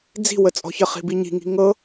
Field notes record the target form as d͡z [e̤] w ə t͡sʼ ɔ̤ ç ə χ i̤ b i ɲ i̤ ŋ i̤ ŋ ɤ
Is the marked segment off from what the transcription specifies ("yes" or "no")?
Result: yes